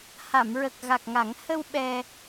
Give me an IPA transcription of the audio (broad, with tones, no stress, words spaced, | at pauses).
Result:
ha˨˩˨mɹə˨˩k̚ɣa˨˩k̚ŋa˨˩˦ŋ hə˧w ɓɛ˧